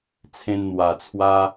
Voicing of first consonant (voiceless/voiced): voiceless